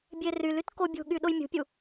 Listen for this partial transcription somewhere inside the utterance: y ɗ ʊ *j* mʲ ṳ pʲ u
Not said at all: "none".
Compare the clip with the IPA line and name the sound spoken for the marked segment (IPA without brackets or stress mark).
j